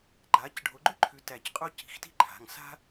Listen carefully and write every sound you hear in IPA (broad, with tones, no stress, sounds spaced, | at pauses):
ɡ͡ǃ a˨˦ c ɖʱ o˨˦ ɡ͡ǃ ʏ˥ ǃʰ ʉ˨˦ t æ˧˩ c qʼ o˥ c i̤˨˦ x t i̤˥ ǃʰ a̤˩˧˩ ŋ s a̤˥